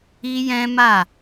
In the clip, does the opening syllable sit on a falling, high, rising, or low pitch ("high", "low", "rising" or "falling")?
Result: high